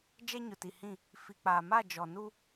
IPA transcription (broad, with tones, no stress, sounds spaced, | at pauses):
d͡ʒ ɛ˦ ɲ ʊ˨ t i˨ h ĩ˦˨ | f i˨ k͡p aː˨ m a˦˨ d͡ʒ ɔ˨ n u˦